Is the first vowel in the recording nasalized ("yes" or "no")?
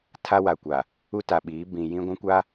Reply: no